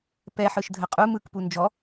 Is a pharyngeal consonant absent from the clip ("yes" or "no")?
no